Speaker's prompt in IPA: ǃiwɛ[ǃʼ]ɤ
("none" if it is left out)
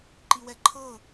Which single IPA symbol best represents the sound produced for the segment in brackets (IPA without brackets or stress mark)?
ǃʰ